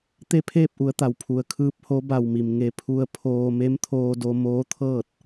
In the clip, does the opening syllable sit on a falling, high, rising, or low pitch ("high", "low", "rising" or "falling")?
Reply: falling